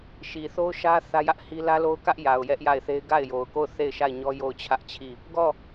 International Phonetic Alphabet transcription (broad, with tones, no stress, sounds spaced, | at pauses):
ʃ i˨ θ o˦ ʊ̯ ʃ ä˦ θ ä˦ j ä˦ ʔ h i˦ l ä˦ l o˦ ʊ̯ k ä˦ ʔ j a˨ ʊ̯ j ɛ˦ ʔ j a˦˨ ɪ̯ θ e˦ ɪ̯ ɡ a˦˨ ɪ̯ j o˨ ʊ̯ k o˦˨ ʊ̯ θ e˦˨ ɪ̯ ʃ a˦˨ ɪ̯ ɲ ɔ˦ j o˦˨ ʊ̯ t͡ɕʰ ä˦ ʔ t͡ɕʰ i˦˨ | ɡ ɔ˦˨